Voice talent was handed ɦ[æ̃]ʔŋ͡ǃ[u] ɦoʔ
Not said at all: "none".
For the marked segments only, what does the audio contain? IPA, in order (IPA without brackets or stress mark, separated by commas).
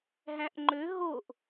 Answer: æ̃, ø